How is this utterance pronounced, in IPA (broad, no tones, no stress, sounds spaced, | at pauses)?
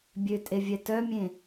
bʲ ø tʼ e vʲ ɛ t œ mʲ ẽ